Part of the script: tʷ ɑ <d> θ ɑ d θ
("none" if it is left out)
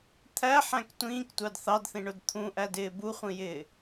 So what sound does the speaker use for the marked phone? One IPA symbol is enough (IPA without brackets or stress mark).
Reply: d